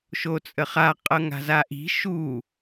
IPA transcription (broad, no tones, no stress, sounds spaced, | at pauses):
ʃ o t͡sʼ ə χ a qʼ ɤ ŋ a̤ z a ʔ i̤ ʃ u